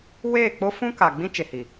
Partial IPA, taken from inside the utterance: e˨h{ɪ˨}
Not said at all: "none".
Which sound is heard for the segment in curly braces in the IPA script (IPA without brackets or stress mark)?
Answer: i˨